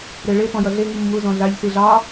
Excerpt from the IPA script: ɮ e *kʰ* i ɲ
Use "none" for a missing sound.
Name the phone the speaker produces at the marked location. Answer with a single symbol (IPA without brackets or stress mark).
ŋ